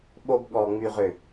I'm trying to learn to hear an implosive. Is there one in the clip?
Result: yes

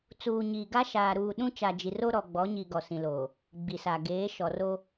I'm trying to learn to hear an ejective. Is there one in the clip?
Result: no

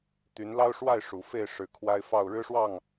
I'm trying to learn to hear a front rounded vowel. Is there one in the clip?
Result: yes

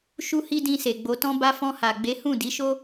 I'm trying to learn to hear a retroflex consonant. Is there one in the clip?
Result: no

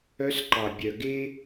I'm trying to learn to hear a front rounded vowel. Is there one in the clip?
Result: yes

